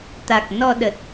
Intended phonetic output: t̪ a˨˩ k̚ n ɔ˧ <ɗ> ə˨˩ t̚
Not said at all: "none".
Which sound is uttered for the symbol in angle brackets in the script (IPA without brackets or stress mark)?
ɗ